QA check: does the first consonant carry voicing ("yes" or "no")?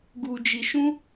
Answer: yes